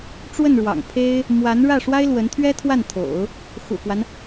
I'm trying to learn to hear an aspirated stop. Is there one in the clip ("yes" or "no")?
yes